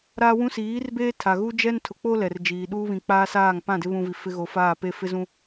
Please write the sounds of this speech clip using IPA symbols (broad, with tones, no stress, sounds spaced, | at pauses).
ɾ aː˦ w ũ˦ s iː˨˦ r b eː˦ tʰ a˨ ɣ u˦ d͡ʒ ɛ˦ n tʰ ʊ˨ k͡p o˦ l ɛ˨ r d͡ʒ iː˨ ɗ uː˦ β ĩ˨ k͡p aː˦ s aː˦˨ ŋ p ã˦˨ d ɪ˦ β ũ˦ v i˨ f ɪ˦ ɣ o˨ f aː˦˨ p e˦ f ɪ˦ z ũ˦